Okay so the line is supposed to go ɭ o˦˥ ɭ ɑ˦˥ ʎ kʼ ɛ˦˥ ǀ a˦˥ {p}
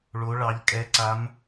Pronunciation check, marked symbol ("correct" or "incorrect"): incorrect